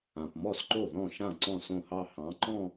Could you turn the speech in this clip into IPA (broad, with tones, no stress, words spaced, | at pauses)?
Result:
ã˨pmɔ˥˩sǃo˥˩ ðɔ̃˥˩ʃã˥˩ ǀɔ̃˥˩sõ˥˩hɑ˥˧ hɑ̃˨˥ǃɔ̃˥˧